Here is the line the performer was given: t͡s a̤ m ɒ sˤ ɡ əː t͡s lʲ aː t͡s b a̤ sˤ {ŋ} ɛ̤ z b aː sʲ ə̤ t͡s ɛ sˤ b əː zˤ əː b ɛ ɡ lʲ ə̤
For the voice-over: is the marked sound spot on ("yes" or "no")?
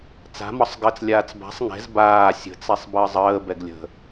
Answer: yes